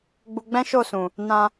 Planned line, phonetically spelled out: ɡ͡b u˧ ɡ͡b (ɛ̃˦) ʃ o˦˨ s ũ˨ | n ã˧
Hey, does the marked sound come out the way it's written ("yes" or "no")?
yes